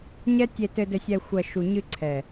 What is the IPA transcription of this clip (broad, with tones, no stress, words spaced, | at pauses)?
ɲɛ˦tʲe˧ tɘ˨dɘ˨sʲɛ˨xʷɐ˨ ʃu˨ɲɨ˧ǀʰɛ˨